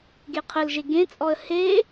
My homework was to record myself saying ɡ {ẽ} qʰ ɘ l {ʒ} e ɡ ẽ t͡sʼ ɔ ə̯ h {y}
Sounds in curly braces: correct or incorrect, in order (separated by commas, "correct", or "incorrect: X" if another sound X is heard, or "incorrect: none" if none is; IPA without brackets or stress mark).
incorrect: e, correct, incorrect: e